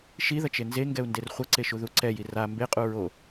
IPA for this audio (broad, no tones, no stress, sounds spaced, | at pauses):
ʃ i ð ʌ t͡ʃ e n z e ŋ ɡ ɛ u̯ n d e r χʷ ʌ ǀ e ʃ u ð u ǀ ɛ j i r a m b e qʼ u ɹ o